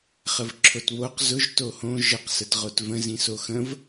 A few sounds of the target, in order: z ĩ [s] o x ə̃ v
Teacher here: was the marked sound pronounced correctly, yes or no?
yes